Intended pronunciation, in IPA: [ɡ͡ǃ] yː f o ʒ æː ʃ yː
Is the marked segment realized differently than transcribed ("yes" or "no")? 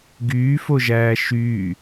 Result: yes